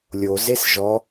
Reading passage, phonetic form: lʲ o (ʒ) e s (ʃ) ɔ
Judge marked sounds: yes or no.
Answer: no, no

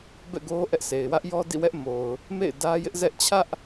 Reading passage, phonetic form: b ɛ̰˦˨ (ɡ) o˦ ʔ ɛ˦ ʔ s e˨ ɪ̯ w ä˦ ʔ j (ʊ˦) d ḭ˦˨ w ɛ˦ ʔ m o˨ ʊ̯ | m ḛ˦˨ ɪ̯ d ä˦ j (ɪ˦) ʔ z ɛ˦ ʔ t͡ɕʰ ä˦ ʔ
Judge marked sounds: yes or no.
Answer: yes, no, yes

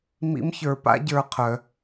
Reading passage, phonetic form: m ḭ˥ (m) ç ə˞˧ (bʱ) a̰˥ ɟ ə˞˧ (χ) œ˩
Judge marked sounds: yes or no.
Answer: yes, no, no

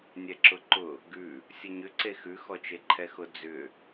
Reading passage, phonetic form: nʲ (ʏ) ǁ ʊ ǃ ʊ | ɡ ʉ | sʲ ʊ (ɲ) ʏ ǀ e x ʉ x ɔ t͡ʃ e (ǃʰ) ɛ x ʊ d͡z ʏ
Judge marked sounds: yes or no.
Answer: no, yes, yes

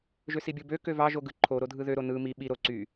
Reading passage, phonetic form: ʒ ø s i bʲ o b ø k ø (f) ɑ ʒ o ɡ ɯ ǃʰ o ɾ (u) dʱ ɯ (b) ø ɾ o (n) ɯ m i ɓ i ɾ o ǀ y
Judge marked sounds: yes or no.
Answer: no, no, no, yes

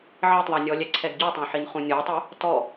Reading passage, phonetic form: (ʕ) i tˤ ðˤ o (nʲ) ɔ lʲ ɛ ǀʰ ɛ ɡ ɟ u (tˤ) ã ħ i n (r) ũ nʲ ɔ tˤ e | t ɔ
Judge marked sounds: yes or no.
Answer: yes, yes, yes, no

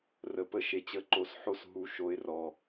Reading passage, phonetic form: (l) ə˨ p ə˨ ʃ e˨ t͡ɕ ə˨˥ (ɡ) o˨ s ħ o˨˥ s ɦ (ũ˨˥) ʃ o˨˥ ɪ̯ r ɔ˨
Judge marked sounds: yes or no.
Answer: no, no, no

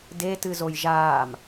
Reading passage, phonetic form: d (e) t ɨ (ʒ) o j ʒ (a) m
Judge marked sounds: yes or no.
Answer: yes, no, no

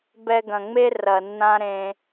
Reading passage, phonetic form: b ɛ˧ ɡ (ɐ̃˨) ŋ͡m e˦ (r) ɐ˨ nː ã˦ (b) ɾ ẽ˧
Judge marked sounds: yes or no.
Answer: yes, yes, no

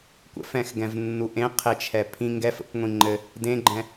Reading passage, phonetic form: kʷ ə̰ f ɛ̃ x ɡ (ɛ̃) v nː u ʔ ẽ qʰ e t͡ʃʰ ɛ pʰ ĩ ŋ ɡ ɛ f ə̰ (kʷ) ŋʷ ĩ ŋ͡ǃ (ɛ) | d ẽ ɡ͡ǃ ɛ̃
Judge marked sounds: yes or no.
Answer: yes, yes, no

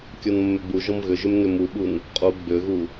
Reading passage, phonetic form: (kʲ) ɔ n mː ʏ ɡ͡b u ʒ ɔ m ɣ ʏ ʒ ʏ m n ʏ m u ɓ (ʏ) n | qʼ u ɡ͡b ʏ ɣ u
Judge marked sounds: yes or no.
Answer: yes, no

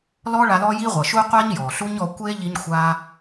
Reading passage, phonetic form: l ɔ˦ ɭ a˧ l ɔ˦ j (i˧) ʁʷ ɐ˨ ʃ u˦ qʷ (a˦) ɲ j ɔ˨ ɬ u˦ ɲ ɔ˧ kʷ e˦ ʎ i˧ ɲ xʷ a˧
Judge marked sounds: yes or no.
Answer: no, yes

